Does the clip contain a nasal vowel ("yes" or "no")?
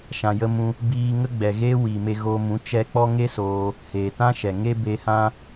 yes